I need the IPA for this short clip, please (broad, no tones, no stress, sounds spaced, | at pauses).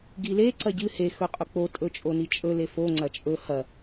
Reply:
ɡ i l e ǀ ɐ ɟ ɨ h e x ɵ qʼ ɵ k͡p o tʼ ɵ t͡ʃʼ o n i t͡ʃʼ ɵ l e f o ŋ͡ǀ ɐ t͡ʃʼ ɵ h ɐ